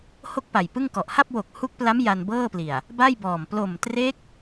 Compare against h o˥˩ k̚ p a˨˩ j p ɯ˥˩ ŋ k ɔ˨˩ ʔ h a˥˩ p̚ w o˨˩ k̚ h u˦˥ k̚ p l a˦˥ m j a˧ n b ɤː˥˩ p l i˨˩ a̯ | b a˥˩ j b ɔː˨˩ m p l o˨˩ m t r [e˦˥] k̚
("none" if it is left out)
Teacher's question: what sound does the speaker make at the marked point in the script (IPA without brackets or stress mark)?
e˦˥